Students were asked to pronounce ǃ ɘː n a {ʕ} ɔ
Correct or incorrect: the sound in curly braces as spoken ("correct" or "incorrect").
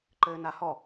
incorrect